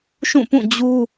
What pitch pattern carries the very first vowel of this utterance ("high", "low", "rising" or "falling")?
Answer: falling